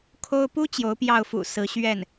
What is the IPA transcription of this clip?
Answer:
kʰ o˥ ʊ̯ p u˥ t͡ɕ j o˧˥ ʊ̯ p j ɑ˥˩ ʊ̯ f ṵ˨˩ s ɹ̩˧˥ ɕ ɥ ɛ˥˩ n

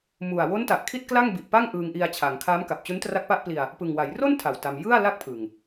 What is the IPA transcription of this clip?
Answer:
m u˨˩ a̯ w o˦˥ n t a˨˩ ʔ kʰ i˥˩ t̚ k l a˥˩ ŋ b i˨˩ ʔ p a˥˩ ŋ ʔ ɯː˧ ŋ ʔ i˧ a̯ t͡ɕʰ a˩˦ ŋ kʰ a˦˥ m k a˨˩ p̚ t͡ɕ u˦˥ n t r a˦˥ k̚ p a˦˥ ʔ p l i˧ a̯ | p ɯ˨˩ ŋ w a˩˦ j r o˥˩ n tʰ a˨˩ w t a˧ m j ɯ˥˩ a̯ l a˥˩ k̚ pʰ ɯ˨˩ ŋ

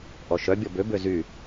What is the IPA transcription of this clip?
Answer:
ʔ ɔ ʃ œ bʲ ɔ b ø b ø z y

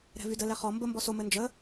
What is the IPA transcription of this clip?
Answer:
ɾ ɛ̤ v y d ə l ɛ χ ɔ m b ə m b ɔ s o m ɘ n d͡ʒ ə

